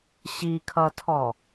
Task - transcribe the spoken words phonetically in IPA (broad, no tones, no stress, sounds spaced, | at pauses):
ɕ i kʰ ʌ tʰ ɔ